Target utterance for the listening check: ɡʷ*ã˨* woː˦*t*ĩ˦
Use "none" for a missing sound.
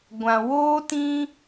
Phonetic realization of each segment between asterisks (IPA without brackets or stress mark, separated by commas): ã˨, t